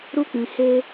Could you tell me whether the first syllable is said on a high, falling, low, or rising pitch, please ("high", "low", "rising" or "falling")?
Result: high